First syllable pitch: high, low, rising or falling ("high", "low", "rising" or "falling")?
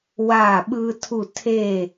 falling